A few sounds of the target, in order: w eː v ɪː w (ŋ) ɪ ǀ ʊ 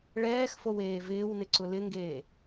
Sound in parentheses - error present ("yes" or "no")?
yes